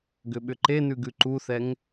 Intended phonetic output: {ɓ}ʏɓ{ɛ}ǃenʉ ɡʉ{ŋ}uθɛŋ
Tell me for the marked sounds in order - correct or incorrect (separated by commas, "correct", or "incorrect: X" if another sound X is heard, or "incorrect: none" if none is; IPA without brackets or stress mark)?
incorrect: ɡ, incorrect: ʏ, incorrect: ǃ